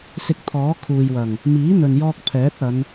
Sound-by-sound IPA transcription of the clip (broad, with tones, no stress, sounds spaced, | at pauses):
s ɪ˧ k̚ t̪ʰ ɔː˨˥ kʰ uː˨ j w ɐ˨˩ ŋ | m iː˨˥ n̪ ɵ˨ n j ɔː˧ k̚ pʰ ɛː˨˥ t̚ ɐ˨˧ n